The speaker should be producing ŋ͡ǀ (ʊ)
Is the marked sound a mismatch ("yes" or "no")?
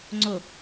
no